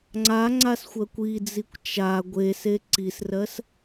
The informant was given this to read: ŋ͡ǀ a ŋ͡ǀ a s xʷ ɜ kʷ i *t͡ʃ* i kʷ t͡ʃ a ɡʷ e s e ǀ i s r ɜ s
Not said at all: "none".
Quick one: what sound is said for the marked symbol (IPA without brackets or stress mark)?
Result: d͡z